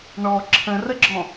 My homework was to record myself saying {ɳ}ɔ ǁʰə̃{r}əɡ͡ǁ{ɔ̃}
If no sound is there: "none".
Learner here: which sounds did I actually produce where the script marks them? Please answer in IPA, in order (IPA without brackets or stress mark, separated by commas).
ɳ, r, ɔ̃